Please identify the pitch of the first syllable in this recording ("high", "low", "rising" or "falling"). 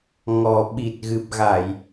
low